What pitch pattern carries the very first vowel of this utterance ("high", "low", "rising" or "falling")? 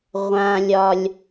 low